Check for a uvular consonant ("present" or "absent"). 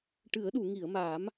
absent